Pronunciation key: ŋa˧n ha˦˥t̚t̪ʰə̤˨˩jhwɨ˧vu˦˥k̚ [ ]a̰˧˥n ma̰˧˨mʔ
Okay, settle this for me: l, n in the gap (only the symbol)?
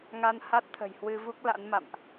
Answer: l